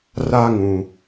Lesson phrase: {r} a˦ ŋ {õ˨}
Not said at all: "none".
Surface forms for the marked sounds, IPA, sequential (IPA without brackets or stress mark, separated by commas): r, ũ˨